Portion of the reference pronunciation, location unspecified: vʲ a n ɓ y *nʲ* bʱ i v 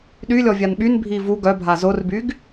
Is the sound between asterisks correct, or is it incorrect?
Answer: incorrect: n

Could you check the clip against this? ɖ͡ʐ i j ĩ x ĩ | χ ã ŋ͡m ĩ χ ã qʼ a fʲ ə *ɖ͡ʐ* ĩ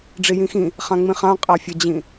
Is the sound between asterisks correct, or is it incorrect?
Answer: incorrect: d͡ʑ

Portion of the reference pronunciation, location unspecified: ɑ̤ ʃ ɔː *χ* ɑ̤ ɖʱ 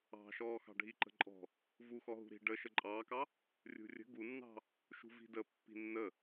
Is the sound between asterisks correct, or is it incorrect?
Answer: incorrect: x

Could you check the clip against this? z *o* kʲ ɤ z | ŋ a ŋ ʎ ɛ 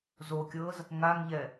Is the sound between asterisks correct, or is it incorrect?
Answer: correct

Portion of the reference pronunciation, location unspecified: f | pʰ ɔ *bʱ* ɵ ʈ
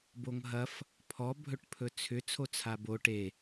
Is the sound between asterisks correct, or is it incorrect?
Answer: correct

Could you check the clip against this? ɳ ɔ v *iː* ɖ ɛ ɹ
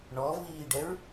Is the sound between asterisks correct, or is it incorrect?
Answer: correct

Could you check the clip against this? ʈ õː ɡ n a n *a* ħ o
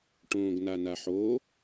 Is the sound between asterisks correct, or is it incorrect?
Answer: correct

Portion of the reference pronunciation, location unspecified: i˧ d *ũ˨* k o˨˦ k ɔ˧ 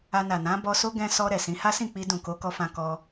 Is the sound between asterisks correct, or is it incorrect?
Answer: correct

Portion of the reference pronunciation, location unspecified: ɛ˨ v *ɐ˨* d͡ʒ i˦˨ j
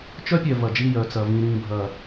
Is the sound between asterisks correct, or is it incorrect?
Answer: correct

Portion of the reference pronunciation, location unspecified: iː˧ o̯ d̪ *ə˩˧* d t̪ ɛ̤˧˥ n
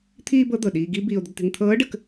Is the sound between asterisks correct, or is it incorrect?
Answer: incorrect: ə˥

